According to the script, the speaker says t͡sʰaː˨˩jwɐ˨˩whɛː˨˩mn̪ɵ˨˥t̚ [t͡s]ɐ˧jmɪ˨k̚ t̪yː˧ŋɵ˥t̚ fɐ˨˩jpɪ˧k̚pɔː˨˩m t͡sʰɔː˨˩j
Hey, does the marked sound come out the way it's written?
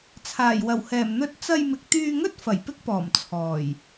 yes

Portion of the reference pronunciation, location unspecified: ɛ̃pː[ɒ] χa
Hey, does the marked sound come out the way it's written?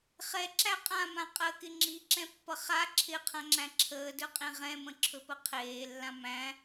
no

